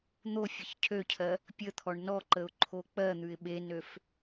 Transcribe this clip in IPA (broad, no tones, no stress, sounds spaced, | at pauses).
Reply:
n̪ o fʲ ə ç cʰ ø cʰ ɜ | pʲ ə t̪ʰ ɔ ɳ n ɔ ǃ ə ʊ̯ ǃʰ o k͡p ɜ n̪ ʉ ɪ̯ ɓ e n ø f